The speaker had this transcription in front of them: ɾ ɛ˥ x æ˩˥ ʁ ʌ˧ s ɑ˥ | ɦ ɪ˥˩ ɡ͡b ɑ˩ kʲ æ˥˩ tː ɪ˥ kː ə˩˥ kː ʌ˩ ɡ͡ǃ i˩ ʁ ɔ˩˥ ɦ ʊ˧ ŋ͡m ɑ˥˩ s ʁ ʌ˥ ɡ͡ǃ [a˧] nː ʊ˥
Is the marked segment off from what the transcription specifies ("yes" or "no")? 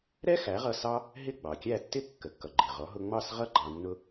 yes